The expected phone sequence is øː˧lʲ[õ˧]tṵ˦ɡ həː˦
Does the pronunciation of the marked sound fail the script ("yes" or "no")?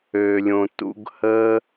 no